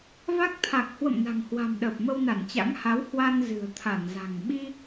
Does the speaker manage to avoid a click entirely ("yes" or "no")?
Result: yes